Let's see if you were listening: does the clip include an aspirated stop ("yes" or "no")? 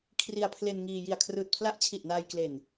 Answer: yes